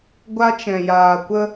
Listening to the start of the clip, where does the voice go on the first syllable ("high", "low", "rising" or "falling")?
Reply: high